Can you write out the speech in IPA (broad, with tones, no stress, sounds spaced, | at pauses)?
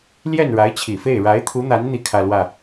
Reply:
l j ɛ˥˩ n ɻ a˧˥ ɪ̯ t͡ɕʰ i˨˩ f e˥˩ ɪ̯ ɻ a˧˥ ɪ̯ t̪ʰ u˧˥ n̪ a˧˥ n n̪ i˥˧ kʰ ä˥˧ l w ä˥˩